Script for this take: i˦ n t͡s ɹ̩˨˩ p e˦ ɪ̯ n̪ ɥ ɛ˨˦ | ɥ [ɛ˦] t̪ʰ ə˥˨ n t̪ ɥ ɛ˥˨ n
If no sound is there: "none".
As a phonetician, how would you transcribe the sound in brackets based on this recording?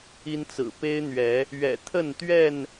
ɛ̰˨˩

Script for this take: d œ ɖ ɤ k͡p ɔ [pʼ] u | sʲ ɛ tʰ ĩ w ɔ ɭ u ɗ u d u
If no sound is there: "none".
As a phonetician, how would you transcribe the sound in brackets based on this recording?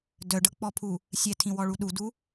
pʰ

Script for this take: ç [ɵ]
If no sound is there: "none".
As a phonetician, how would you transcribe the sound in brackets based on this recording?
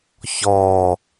ɔ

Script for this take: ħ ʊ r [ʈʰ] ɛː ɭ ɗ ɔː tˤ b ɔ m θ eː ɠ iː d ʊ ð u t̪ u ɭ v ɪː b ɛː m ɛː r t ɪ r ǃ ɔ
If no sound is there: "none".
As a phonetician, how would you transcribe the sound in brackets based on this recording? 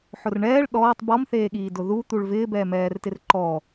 ɳ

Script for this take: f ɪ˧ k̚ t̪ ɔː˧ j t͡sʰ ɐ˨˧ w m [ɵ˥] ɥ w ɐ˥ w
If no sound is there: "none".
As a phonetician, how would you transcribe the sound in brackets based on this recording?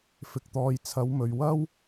ɵ˨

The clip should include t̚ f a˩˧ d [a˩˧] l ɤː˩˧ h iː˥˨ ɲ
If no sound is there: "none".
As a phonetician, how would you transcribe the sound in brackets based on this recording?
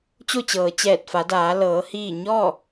aː˩˧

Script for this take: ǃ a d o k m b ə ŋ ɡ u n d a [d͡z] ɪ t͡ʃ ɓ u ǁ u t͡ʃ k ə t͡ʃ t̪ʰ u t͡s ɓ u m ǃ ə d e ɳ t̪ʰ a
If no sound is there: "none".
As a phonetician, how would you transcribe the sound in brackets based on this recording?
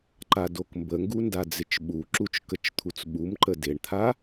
d͡z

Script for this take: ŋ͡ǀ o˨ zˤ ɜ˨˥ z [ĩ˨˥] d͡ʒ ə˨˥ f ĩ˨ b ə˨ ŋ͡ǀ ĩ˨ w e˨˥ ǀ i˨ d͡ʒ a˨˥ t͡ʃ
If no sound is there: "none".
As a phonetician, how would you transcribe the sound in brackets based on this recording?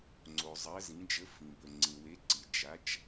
ĩ˨˥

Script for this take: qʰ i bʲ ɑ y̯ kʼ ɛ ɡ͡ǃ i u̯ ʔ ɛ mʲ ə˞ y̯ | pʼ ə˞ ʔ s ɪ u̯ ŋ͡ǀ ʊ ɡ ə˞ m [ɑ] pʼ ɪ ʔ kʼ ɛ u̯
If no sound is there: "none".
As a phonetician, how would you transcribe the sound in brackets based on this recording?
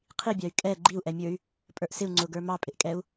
ɑ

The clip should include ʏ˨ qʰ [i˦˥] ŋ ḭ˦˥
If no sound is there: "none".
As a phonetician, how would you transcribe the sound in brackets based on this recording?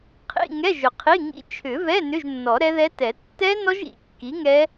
i˧˥˧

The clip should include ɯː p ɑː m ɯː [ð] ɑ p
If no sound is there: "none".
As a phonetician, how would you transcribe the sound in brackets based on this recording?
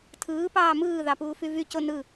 ð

